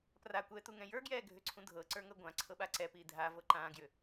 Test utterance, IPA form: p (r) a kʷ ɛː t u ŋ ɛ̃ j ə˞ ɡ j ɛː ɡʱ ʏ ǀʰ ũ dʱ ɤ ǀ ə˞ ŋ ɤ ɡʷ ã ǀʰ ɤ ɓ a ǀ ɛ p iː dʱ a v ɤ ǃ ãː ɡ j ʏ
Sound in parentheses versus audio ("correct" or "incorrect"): correct